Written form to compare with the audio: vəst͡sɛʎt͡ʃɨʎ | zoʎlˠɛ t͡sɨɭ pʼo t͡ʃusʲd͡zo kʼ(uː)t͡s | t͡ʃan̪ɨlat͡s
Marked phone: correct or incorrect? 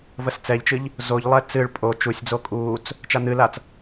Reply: correct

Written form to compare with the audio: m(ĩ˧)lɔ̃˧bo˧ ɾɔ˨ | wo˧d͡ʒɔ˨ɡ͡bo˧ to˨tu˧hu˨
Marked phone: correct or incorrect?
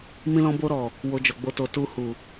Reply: correct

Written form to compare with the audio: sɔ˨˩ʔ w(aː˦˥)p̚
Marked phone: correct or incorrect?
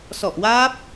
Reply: correct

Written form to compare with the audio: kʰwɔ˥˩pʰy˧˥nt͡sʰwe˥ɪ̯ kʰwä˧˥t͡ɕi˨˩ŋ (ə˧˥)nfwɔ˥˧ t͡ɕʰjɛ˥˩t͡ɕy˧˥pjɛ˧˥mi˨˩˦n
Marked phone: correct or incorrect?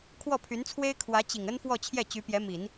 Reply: incorrect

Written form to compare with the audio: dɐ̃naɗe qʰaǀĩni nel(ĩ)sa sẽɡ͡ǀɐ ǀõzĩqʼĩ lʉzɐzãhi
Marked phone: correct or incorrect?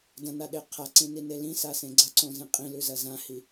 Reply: correct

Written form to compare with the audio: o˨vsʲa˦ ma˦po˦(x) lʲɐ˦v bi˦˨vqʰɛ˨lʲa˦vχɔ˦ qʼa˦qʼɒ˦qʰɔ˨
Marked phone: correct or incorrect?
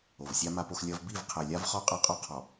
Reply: correct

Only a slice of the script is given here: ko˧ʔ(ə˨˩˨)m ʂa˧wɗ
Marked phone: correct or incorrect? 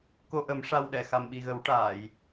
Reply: incorrect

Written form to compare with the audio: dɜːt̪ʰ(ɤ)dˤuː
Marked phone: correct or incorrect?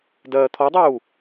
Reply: incorrect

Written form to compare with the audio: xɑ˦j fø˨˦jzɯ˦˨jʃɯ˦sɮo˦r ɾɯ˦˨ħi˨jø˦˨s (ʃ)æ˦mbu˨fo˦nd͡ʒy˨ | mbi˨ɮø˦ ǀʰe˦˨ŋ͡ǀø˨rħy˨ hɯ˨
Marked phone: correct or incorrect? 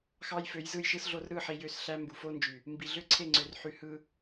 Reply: incorrect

